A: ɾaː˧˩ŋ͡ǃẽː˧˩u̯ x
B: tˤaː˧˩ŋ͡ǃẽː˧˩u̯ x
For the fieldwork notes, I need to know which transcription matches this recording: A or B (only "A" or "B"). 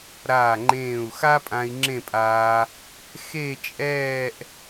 A